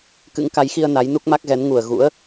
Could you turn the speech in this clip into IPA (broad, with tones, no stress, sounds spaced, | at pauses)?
k ɨ̰˧˥ ŋ k a˨˦ j x i˧ ə̯ n a˨˦ j n u˦˥ k̚ m a˦˥ k̚ ɣ ɛ˨˦ n ŋ u˨˩ ə̯ ɣ ṵ˧˥ ə̯